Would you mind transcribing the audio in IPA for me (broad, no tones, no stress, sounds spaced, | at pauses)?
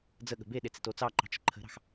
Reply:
d͡z ə ɠ ə̤ b e ɗ e t͡s e t o t͡s ɑ ǃ ɑ̤ t͡ʃ ə̤ ǃʰ ə̤ ɾ ɑ̤ x